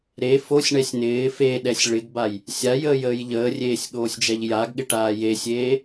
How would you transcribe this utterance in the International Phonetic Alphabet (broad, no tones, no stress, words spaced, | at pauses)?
ɾe fosʲɳɛsʲ nɪː feɗɛsʲ ɭɪɡbaj | sʲajəːjəːj ʎəːrʲeːsʲɠoːsʲd͡ʒɛʎ jaɡɠɪʈaː jesʲeː